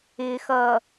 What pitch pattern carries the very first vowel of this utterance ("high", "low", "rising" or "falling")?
low